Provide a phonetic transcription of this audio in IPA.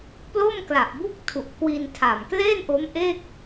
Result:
p l o˥˩ m k l a˨˩ ʔ b u˥˩ k̚ tʰ u˨˩ ʔ k w i˧ n tʰ a˨˩ m k l e˥˩ n ʔ o˦˥ m ʔ eː˥˩ k̚

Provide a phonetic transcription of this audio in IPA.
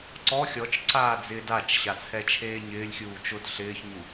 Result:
ǀ ɔ xʲ ɔ t͡ʃ ǀ aː d͡z ɪː d a t͡ʃ ɕ a t͡sʰ ɛ t͡ʃʰ eː ɲ ɪː lʲ xʲ uː t͡ʃ ʊ d ɬ ɪː ç ɲ u

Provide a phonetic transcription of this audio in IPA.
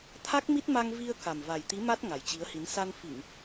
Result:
t̪ʰ a˦˥ k̚ m i˦˥ t̚ m a˧ ŋ v i˧ ə̯ k a˨˩ m v a˨˩ j t̪ i˨˦ m a˦˥ t̚ ŋ a˨˩ j t͡ɕ i˨˦ ə̯ h i˨˦ n s a˧ n f i˧˩˨ ŋ

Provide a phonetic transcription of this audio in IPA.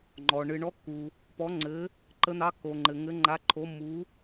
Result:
ŋ͡ǃ ɔ˩ ɳ ɨ˩ ɳ ɔ˨˦ kː u˩ | p ɔ˨˦ ŋ͡ǀ ɘ˨˦ | ǃ ə˨˦ n̪ ɑ˨˦ kː o˩ ŋ͡ǃ ɘ˩ ŋ ɘ˨˦ ŋ͡ǃ a˨˦ ǃʰ o˨˦ mː u˨˦

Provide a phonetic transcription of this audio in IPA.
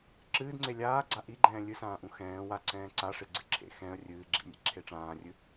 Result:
ǁ ɨː d ŋ͡ǀ e lʲ aː ɡ͡ǀ a ʔ i ɡ͡ǃ ɛ̃ː lʲ ɨ s ãː ʔ ũ x ɛ̃ː w a ǀ ɛ̃ː ǀ a ʂ e ɡ͡ǀ ɨ ǁʰ ḛ x ɛ̃ ə̯ rʲ ɨː ɡ͡ǁ ḭ nʲ ḛ ǁʰ e ʈ͡ʂ ãː rʲ ɨ

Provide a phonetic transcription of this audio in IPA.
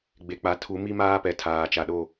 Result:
ɡ͡b e˨ k͡p a˨˦ tʰ u˨˦ m i˦ m aː˦ p ɛ˨ tʰ aː˨ t͡ʃ a˨ ɗ o˦˨

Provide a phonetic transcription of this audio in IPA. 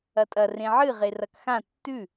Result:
ɐ tʼ ɐ r ẽ ʕ ɨ ʁ e r ɐ k x ã tː ʉ

